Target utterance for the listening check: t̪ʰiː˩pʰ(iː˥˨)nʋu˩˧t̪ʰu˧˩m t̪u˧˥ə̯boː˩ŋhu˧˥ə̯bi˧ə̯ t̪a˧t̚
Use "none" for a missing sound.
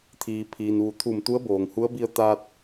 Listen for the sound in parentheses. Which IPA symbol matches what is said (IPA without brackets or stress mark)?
iː˩